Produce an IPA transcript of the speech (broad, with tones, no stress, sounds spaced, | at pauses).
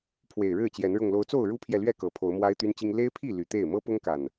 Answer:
pʰ w e˨˩ ɪ̯ ɻ ɻ̩˥˨ t͡ɕ j ɛ˨˦ n ɻ ʊ˨˩ ŋ l o˨˦ ʊ̯ t͡s o˥˨ ʊ̯ ɻ u˦ pʰ j ɛ˨ l ɥ ɛ˥˨ k ɤ˨˩ pʰ o˨˦ ʊ̯ m w a˦ ɪ̯ t̪ y˦ n t͡ɕ i˦ ŋ l e˦ ɪ̯ pʰ i˥˨ l y˨˩ t̪ e˥˨ ɪ̯ m ɤ˦ p ʊ˦ ŋ k a˨˩ n